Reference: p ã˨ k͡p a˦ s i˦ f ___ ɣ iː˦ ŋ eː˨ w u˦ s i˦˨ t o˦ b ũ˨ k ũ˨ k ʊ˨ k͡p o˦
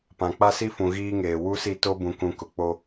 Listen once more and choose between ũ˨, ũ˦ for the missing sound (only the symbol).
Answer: ũ˨